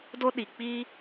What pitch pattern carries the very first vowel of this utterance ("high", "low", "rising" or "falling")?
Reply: high